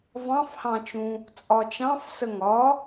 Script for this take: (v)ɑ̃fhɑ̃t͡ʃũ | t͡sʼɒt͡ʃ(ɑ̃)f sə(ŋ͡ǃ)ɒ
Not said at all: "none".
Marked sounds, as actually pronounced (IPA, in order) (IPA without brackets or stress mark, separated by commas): v, ɑ̃, ŋ